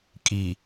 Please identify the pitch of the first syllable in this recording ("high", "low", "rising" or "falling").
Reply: low